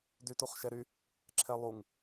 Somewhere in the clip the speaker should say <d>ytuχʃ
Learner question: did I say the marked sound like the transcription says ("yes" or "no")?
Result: yes